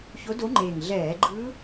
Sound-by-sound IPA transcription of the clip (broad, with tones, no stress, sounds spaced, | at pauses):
ç o˧˥ d o˧˥ ŋ͡ǃ eː˨˩ ŋ ɮ ɛː˧˩˧ ɡ͡ǃ ɯː˧˥